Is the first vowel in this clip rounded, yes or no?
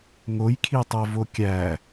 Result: yes